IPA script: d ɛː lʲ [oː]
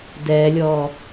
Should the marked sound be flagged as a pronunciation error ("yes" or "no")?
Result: yes